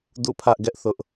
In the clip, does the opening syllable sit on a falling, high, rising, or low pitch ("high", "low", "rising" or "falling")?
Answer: falling